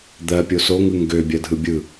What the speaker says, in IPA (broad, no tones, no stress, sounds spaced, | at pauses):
d̪ ɜ pʲ o s o ŋ ɯ ŋ ɡ ø bʲ ɜ dʱ ɯ bʲ ɯ